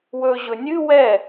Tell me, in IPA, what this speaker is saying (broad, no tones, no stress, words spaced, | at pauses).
wɵʑɵ nʲɨ wɛ